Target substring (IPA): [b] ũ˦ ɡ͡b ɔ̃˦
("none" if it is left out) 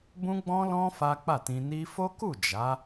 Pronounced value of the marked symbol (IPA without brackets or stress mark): b